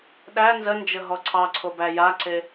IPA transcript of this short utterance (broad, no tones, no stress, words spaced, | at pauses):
ɗæ nzənd͡ʒə ɦɔǀʰɑǀʰo bæjaǀe